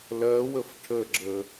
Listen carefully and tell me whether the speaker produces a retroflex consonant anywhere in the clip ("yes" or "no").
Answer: yes